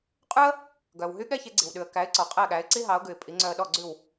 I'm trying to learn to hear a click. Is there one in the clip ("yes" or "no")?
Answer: yes